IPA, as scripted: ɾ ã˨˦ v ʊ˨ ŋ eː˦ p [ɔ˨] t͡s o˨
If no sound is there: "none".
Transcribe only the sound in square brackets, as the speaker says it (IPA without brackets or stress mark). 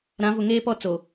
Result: ɔ˦